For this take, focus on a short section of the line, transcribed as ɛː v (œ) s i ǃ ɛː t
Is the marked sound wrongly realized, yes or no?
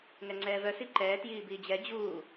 no